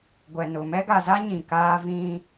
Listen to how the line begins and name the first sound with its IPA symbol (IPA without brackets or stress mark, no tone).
ɡʷ